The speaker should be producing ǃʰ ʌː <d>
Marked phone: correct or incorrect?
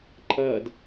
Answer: correct